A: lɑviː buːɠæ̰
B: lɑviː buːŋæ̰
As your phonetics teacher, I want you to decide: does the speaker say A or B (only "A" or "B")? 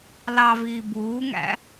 B